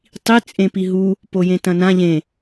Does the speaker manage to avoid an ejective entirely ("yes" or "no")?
no